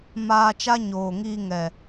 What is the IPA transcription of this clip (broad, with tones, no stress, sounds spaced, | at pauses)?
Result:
m aː˧ t͡ʃ a˦ ɲ oː˨ ŋ iː˧ ŋ ɛ˨